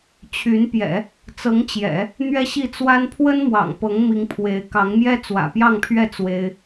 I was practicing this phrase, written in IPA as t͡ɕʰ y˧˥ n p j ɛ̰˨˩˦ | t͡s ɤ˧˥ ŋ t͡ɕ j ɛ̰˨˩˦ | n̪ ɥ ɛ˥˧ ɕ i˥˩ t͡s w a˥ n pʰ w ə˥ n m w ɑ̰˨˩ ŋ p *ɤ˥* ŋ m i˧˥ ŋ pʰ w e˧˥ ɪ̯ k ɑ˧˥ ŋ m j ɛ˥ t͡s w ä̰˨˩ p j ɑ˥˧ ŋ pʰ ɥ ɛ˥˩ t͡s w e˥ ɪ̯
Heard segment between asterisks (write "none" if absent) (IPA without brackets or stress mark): ɤ˧˥